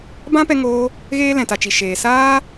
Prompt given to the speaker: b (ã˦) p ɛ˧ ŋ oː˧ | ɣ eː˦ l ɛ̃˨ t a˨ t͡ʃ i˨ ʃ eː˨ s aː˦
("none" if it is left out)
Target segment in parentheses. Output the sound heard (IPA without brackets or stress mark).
ã˦